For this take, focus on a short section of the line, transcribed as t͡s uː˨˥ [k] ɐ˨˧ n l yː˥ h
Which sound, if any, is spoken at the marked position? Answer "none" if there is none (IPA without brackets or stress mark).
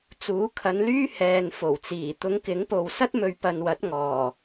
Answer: kʰ